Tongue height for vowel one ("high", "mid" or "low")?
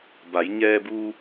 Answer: low